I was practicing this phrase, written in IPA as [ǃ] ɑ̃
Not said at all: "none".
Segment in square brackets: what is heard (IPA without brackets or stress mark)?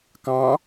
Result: k